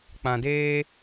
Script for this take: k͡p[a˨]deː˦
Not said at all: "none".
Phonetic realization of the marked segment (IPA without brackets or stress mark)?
ã˨